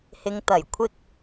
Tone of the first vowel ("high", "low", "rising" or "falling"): low